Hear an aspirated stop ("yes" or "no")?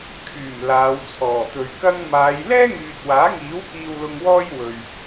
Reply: yes